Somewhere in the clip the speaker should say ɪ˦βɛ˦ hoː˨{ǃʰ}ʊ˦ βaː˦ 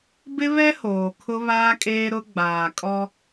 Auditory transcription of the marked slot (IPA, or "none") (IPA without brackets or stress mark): kʰ